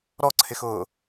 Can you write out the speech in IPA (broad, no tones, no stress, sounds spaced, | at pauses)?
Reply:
ɾ ɔ ǀʰ ɪ x ʊː